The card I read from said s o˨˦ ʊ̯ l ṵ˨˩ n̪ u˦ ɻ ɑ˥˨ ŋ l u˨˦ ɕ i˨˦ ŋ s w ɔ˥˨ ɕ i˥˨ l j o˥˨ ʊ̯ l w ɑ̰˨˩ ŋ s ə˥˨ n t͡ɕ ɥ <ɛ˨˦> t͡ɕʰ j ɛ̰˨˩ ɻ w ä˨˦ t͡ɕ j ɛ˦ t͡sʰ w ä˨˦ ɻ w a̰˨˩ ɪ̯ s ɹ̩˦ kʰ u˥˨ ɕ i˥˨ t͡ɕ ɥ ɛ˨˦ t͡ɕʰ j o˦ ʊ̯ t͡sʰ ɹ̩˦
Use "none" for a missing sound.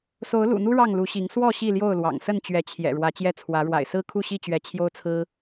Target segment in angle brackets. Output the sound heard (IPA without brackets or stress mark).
ɛ˨˦